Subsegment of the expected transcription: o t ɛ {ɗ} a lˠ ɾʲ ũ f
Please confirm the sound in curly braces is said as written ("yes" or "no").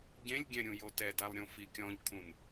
no